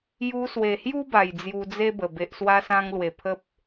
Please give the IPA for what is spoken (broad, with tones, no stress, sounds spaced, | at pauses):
j u˧ s w e˨˩ h j u˦ b a˨˩ j d͡z j u˧ d͡z e˦ b ə˨˩ b e˨ ʔ s w a˧ s ã˧ ŋ l w e˨˩ pʰ ə˦ p̚